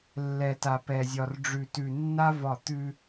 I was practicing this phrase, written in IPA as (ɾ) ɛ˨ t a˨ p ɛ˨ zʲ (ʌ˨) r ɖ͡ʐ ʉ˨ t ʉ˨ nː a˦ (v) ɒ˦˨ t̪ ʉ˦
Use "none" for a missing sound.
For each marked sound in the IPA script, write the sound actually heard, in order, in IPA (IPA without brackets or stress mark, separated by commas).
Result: lː, ɒ˨, v